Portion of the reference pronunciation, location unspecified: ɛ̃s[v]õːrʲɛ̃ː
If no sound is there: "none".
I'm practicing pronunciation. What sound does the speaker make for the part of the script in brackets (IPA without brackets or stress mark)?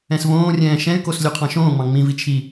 v